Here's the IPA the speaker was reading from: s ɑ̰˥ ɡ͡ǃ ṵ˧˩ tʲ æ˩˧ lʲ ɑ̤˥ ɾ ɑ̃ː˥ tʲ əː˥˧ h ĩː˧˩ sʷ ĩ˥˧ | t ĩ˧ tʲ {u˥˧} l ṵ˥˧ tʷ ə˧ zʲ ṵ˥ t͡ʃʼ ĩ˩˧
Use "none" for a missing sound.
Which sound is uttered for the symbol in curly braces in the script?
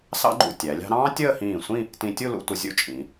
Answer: u˥˧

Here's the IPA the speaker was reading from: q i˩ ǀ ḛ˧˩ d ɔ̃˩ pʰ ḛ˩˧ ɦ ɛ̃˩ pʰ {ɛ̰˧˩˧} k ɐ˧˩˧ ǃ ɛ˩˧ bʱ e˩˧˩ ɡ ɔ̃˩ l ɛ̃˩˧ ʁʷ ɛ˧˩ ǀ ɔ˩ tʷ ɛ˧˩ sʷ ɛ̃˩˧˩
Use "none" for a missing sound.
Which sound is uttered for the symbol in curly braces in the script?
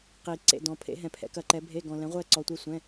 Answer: ɛ̰˩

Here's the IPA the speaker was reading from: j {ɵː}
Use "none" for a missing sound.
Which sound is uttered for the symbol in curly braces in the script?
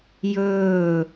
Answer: ɵː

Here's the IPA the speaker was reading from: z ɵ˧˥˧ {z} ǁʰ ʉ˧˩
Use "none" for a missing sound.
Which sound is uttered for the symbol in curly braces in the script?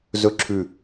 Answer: none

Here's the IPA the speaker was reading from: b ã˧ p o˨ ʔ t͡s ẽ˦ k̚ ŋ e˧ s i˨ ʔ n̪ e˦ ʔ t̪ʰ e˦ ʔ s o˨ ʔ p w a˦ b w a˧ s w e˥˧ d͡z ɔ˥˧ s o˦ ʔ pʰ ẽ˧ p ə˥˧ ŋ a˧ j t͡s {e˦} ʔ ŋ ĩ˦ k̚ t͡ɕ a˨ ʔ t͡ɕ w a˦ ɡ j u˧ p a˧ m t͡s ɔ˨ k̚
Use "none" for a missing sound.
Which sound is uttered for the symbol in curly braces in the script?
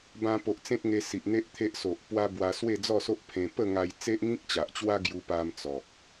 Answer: e˦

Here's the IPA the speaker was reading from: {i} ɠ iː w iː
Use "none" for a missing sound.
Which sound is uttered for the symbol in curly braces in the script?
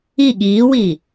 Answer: i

